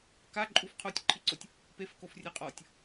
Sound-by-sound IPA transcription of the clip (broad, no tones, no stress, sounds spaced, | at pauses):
k a ǃʼ u f qʰ o tʲ ǃʰ i ǀ o tʲ | p e f k o f rʲ e qʼ ɔ tʲ